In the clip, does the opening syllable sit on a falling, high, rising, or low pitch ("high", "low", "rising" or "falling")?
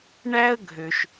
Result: high